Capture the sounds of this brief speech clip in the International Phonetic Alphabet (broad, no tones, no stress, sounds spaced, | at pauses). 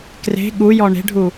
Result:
k r e̤ ɠ u j ɔ ɳ e̤ ɖʱ u